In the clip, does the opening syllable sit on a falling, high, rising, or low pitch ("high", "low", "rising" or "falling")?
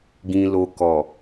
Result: low